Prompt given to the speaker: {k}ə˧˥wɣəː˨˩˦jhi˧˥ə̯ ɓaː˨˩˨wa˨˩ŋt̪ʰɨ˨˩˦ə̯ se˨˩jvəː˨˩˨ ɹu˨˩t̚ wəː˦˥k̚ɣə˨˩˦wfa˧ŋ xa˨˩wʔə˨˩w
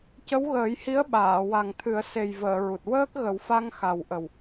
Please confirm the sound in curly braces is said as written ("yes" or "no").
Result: no